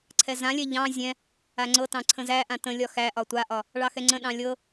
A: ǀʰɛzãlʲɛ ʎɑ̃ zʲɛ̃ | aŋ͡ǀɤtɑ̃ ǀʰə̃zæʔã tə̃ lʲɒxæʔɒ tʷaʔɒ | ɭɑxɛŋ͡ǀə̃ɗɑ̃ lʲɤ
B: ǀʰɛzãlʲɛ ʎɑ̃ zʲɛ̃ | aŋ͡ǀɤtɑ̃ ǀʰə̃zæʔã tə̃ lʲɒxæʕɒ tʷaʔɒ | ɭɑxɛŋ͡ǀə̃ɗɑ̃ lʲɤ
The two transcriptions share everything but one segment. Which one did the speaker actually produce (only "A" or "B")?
A